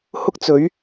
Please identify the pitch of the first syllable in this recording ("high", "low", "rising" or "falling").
high